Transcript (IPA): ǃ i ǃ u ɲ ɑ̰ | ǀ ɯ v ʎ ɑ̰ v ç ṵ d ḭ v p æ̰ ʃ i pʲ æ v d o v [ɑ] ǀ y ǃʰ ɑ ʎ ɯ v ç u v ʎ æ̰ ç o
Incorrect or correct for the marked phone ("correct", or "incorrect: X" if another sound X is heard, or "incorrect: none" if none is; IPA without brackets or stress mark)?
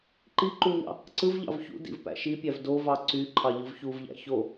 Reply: correct